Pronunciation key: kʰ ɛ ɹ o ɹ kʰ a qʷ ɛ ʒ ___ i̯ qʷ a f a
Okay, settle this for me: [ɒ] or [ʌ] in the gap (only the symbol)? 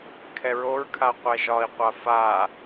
ɒ